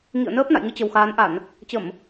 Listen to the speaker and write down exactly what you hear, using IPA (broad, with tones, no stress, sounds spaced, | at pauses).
ŋ ḭ˧˨ ə̯ n əː˦˥ p̚ n a̰˧˨ j ŋ ɨ˧ t͡ɕ ə˨˩ w x aː˨˦ n ʔ a˧˩˨ n | t͡ɕ ə˧˩˨ m